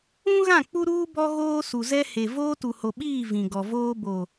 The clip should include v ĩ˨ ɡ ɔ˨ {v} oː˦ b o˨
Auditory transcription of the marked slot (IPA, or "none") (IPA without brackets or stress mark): v